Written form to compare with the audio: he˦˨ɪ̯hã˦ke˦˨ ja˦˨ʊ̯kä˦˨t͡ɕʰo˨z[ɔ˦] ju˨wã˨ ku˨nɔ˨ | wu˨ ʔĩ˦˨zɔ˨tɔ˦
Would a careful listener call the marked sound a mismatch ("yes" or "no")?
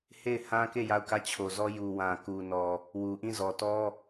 no